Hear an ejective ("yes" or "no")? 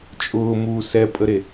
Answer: yes